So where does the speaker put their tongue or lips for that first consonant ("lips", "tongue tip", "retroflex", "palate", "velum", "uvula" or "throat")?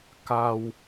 velum